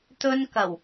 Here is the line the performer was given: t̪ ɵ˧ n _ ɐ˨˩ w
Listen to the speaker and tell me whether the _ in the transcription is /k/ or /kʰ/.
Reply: k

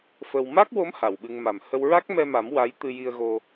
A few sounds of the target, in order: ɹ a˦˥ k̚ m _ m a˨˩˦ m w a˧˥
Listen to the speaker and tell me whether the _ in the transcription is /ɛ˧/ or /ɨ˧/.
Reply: ɛ˧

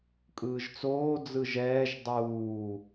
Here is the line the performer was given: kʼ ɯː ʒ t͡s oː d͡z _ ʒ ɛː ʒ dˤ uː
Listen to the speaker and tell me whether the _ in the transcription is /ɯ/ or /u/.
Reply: ɯ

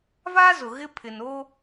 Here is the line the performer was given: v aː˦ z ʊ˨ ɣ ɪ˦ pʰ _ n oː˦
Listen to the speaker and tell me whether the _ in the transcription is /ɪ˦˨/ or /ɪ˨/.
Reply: ɪ˨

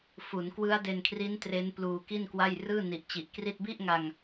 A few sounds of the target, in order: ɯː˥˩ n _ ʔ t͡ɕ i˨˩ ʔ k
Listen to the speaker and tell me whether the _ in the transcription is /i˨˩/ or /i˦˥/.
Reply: i˨˩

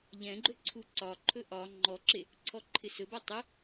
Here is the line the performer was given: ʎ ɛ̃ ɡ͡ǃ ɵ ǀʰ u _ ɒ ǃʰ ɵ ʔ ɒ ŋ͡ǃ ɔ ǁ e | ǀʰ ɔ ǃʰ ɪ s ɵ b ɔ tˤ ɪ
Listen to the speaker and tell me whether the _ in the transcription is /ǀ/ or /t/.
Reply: ǀ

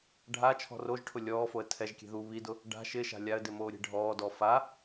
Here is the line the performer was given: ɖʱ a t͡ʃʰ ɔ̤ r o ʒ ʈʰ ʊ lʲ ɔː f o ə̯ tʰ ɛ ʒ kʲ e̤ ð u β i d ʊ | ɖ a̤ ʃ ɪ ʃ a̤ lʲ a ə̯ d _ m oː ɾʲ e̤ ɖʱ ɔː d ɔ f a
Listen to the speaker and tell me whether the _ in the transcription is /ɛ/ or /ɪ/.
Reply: ɪ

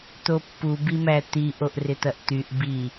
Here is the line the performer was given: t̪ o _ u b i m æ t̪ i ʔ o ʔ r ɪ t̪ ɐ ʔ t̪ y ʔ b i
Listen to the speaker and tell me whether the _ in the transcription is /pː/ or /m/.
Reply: pː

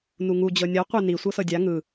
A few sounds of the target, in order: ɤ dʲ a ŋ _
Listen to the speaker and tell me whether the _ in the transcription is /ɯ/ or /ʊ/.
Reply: ɯ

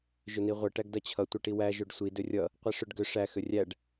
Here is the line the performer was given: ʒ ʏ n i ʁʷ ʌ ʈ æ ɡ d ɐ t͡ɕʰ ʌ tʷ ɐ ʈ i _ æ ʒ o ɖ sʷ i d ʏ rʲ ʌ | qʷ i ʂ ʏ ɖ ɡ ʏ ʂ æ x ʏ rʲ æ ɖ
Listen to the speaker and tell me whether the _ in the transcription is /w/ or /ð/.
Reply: w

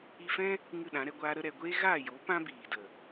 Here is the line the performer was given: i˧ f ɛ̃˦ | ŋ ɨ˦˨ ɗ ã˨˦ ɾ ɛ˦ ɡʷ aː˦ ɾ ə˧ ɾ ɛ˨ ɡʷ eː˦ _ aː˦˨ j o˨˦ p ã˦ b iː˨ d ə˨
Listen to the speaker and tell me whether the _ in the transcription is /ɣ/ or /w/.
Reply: ɣ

